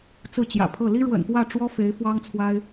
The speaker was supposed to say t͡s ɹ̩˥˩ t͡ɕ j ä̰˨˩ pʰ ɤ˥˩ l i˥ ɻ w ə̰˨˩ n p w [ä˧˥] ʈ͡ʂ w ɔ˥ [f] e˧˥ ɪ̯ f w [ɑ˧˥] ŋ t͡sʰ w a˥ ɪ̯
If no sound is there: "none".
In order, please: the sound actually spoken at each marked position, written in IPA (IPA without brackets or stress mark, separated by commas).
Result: ä˥˩, f, ɑ˥